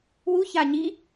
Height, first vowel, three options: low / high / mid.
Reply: high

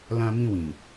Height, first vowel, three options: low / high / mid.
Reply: low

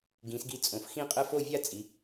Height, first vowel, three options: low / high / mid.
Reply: high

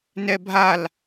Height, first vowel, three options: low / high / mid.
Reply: mid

